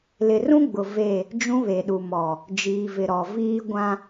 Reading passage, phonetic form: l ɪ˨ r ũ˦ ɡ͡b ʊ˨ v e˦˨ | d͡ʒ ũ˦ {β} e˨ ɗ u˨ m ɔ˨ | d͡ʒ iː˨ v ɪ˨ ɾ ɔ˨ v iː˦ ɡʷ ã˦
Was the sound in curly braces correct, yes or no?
yes